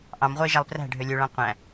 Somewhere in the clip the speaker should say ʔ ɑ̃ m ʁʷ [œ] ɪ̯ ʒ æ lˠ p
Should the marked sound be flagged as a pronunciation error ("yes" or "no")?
no